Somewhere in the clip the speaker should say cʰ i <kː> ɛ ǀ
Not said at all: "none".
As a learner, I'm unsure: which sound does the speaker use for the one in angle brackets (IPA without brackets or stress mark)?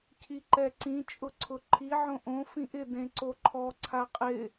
ǃ